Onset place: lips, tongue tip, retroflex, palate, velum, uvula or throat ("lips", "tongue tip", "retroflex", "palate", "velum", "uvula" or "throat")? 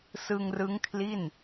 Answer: tongue tip